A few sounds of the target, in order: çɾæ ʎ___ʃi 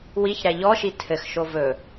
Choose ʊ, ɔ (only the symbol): ɔ